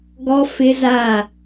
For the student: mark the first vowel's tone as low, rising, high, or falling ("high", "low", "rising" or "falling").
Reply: high